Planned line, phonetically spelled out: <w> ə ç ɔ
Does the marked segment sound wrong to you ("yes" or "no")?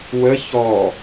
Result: no